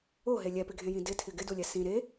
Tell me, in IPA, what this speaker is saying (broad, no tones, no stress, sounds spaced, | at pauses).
o ɦ e lʲ ɛ p ɪ ɡʱ ẽ j ĩ d ɪ tʰ ɪ ɡ ɪ d u lʲ ɛ s ĩ ɾ e